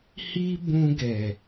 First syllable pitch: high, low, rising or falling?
high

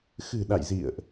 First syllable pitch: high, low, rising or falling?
low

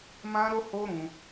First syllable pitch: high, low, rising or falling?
high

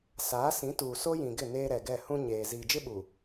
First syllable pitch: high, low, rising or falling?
rising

